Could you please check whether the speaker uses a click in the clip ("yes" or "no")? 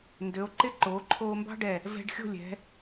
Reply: yes